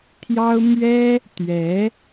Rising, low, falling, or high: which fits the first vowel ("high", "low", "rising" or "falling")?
high